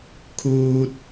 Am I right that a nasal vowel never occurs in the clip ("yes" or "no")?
yes